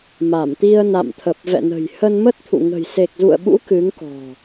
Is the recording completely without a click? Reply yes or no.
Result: yes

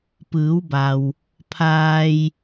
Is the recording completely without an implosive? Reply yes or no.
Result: yes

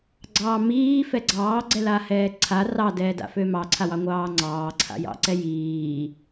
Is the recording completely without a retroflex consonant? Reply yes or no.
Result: yes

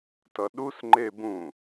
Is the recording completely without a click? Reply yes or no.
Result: no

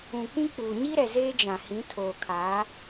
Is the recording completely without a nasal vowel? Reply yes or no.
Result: no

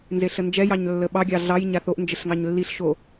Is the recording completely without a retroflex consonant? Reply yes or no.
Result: yes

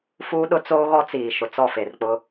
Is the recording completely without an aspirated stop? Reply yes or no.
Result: yes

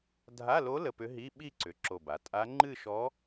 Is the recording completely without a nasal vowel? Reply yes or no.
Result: yes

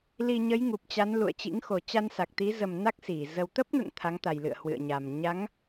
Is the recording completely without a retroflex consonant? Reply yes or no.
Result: yes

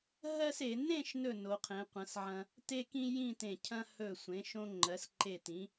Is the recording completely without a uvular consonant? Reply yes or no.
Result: no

